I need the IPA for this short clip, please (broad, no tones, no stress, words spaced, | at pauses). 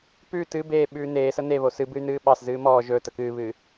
pʉ tɨ beː ɓʉːneːsə neβo sɨbɨy̯nɨː ɓɑs zɨːmɔː ʒɵːtə kɨːβɨ